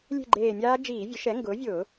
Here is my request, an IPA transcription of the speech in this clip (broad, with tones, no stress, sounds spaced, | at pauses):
lʲ e̤˥˨ ɡ͡ǃ eː˧˩ mʲ aː˦˥ d͡ʒ iː˧˩˧ vʲ ʊ˩˥ ʃ ɛ˩˥ ŋ ɡ ʊː˩˥ vʲ ʊː˧˩˧